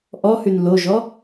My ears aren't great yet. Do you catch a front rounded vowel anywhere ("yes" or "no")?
yes